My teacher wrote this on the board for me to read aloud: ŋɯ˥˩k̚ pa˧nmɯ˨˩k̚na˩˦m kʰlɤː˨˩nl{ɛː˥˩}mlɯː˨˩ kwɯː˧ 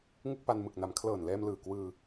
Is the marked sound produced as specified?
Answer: no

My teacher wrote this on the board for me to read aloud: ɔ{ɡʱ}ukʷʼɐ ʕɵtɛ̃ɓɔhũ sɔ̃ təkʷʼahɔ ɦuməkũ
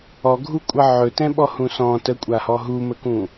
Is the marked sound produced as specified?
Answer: yes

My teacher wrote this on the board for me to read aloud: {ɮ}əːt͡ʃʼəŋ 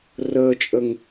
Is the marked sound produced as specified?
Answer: no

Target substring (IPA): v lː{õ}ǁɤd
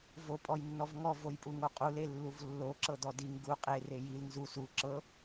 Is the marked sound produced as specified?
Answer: no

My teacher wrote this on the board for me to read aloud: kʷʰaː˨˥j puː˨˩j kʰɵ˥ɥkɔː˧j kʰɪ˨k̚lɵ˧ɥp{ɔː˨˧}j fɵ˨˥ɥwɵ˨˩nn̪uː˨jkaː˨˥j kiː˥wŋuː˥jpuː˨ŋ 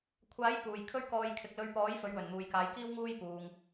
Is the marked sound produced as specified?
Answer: no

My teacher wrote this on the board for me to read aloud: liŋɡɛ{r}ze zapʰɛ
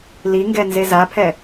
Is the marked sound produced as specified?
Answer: no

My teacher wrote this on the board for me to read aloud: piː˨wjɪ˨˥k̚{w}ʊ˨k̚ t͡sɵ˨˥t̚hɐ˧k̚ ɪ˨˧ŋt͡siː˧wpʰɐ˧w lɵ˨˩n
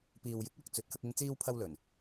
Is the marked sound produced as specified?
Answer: yes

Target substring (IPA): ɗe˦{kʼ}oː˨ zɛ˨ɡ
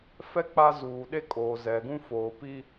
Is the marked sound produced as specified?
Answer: yes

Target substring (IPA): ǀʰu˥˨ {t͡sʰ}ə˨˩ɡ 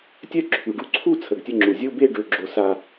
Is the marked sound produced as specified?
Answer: yes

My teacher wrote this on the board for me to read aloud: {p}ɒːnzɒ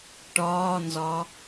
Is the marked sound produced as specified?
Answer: no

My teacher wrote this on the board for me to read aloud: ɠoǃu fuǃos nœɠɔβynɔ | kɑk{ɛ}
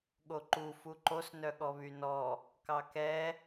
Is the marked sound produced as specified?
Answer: yes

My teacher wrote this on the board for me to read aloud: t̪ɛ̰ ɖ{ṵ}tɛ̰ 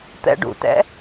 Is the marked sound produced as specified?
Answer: yes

